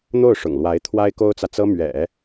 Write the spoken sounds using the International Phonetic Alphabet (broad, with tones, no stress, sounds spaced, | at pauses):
n̪ o˥˩ ʊ̯ ʂ ʊ̰˨˩ ŋ l w a˧˥ ɪ̯ t̪ʰ w a˥ ɪ̯ k o˥ ʊ̯ t͡s ä˨ t͡s ɤ˥ m ɥ ɛ̰˨˩˦